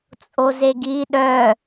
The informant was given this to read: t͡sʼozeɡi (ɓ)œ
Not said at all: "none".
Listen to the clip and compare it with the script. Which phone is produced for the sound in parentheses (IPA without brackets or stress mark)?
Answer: ɗ